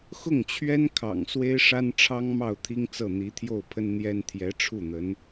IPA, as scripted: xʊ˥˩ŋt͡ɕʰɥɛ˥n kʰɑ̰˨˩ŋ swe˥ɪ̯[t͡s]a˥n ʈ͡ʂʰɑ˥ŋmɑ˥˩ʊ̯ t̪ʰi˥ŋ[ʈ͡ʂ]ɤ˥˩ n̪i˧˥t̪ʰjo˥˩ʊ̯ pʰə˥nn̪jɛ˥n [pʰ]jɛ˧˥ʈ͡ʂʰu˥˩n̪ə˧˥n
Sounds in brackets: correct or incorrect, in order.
incorrect: ʂ, incorrect: t͡s, incorrect: t̪ʰ

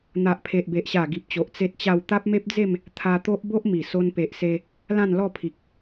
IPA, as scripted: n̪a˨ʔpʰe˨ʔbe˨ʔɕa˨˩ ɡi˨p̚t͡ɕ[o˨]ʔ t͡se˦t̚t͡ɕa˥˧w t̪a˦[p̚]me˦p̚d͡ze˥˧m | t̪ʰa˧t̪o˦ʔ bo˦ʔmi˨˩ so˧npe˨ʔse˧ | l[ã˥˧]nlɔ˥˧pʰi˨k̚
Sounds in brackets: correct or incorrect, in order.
correct, correct, correct

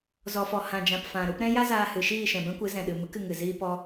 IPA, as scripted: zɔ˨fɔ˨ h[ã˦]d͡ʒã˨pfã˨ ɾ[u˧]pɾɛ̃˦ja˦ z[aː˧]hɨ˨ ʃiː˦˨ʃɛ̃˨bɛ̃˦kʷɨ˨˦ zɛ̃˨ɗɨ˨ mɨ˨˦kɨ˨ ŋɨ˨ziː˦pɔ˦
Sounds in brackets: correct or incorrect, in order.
incorrect: ã˨, correct, correct

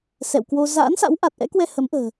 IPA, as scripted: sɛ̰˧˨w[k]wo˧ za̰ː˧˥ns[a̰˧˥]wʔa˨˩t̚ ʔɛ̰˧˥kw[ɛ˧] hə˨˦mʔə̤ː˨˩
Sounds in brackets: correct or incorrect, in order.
correct, correct, correct

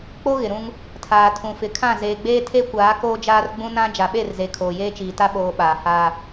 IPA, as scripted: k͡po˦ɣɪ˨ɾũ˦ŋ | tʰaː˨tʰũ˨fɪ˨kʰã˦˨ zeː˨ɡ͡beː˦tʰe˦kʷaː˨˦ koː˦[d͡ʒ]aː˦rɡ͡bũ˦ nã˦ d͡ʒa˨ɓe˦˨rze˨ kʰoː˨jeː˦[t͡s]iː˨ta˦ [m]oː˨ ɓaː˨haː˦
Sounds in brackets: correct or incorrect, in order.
correct, incorrect: t͡ʃ, incorrect: ɓ

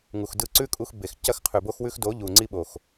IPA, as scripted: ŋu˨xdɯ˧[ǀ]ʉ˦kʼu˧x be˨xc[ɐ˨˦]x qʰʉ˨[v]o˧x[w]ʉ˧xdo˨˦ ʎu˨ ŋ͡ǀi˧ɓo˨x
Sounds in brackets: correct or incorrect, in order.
correct, incorrect: ɐ˧, incorrect: b, correct

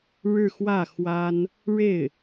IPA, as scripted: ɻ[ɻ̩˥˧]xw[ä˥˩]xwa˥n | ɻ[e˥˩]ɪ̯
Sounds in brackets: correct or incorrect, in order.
correct, correct, correct

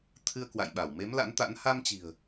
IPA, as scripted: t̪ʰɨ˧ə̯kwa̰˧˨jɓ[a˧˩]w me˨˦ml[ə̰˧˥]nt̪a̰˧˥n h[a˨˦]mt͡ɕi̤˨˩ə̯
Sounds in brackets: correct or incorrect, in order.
correct, incorrect: a̰˧˥, incorrect: a˧

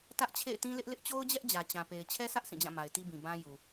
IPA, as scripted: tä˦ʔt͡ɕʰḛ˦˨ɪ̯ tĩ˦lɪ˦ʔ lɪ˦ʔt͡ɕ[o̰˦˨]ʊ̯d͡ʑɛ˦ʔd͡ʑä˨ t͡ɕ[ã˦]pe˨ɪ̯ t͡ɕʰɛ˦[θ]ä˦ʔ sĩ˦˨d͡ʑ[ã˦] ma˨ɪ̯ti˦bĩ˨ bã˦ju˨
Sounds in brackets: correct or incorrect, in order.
incorrect: o˦, incorrect: ã˨, incorrect: s, incorrect: ã˦˨

